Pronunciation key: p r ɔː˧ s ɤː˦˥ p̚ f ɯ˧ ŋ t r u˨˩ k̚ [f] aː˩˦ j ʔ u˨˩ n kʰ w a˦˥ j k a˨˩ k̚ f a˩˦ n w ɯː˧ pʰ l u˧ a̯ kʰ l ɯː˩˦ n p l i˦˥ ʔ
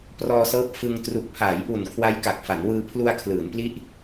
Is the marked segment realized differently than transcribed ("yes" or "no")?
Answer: yes